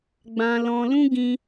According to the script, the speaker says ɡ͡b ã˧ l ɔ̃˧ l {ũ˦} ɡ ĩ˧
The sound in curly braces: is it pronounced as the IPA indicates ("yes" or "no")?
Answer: yes